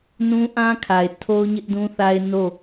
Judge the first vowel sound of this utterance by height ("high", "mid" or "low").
high